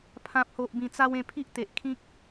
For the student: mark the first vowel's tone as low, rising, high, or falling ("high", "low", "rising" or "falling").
low